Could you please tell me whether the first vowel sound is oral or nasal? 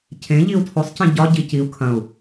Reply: nasal